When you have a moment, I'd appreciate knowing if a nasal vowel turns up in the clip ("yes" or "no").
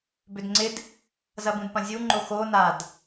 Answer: yes